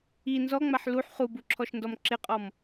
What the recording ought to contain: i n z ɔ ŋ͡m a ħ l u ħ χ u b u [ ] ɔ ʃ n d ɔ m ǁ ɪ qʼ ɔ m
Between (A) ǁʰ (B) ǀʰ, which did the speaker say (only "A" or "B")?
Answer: A